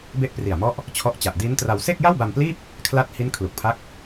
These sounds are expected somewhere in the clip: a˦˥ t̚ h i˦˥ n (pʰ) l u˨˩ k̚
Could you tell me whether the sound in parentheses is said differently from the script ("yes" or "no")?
yes